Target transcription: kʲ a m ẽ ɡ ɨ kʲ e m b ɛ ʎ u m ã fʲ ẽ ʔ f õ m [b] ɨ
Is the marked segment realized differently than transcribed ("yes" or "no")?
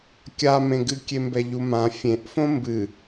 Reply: no